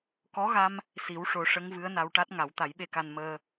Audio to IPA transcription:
k ɔ˧˥ ɣ a˧ m | s i˨˩˦ w ʂ o˨˩˦ ʂ ə˧˥ ŋ v ɨ˧˥ ə̯ n a˧ w ʈ a˦˥ t̚ ŋ a˨˩˦ w t̪ a˨˩˦ j ɓ e˧˥ k a˧ n m əː˧

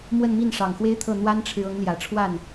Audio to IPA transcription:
m w ə˥˧ n m i˥˩ n ʂ ɑ˨˩ ŋ x w e˥ ɪ̯ t̪ʰ ɤ˥˩ n̪ w a˥ n ʈ͡ʂʰ ɻ̩˨ ɤ˧˥ ŋ l j ä˨˩ ʈ͡ʂʰ w a˥˩ n

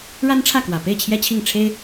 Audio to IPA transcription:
ɻ a˥ n ʈ͡ʂʰ ä˥˩ k w ä˨˩ p e˥˩ ɪ̯ t͡ɕʰ j ɛ˥ t͡ɕʰ i˥˩ ŋ ʈ͡ʂʰ e˥ ɪ̯

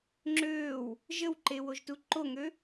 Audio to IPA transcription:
ŋ͡ǁ øː w | ʒ ə w ǃ e w o ʒ t u ǃ o ŋ ø

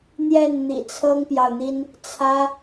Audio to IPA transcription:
n̪ j ɛ˥˨ n n̪ ḭ˨˩ t͡sʰ ɤ˦ ŋ p j ɑ˨ ʊ̯ n̪ i˦ n | t͡sʰ ä˦

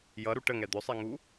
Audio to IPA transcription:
j ʌ ɾ u ʈ ə ŋ ɛ d̪ ɵ sˤ ɛ ŋ u

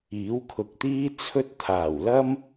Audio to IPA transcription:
iː˨˥ w kʰ ʊ˨ k̚ t̪ iː˥ t͡sʰ ɵ˥ t̚ t̪ʰ aː˨˩ w l ɐ˥ m

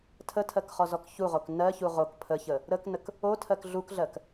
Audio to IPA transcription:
tʰ ə tʰ ɜ k χ ɔ z ɔ k ç u ʁ o k n ɜ ç u ʁ o k pʰ ə ç ə | ɾ ə k n ə k | o tʰ ɜ k ɮ u k ɮ ɜ k

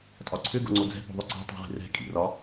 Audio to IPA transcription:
tʼ ɒ ǀʰ ʏ ɡ o̰ ŋ͡ǀ o d͡z ɛ̤ p o̤ ðˤ ʏ ǀ i̤ tˤ o̤ ʁ i̤ r ɛ̤ kʼ ḭ r ɒ

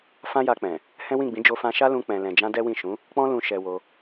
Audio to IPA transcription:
f ã˦ j a˧ k͡p ɛ̃˨ | h ɛ̃˦ w ĩ˦˨ ɡ͡b ĩ˨˦ d͡ʒ o˧ f ã˧ ʃ a˦ l ũ˧ k͡p ɛ̃˨ l ɛ̃˨ d͡ʒ ã˧ d ɛ˦ w ĩ˦˨ ʃ ũ˨˦ | k͡p ɔ̃˧ l ũ˨ ʃ ɛ˧ w o˧

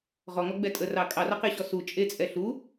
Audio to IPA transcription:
ʁ ɔ ŋ ɔ ɡ͡b ɛ tʼ ə r ɑ kʼ ɑ r ɑ q e ɕ ɔ s u t͡ʃʼ e t͡sʼ ɛ ɬ u

